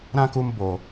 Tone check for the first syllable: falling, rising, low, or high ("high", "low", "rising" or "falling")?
high